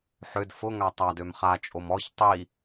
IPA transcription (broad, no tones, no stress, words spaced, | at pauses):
ħød fʊ ŋatˤadøm χat͡ʃʼom ɔç tˤi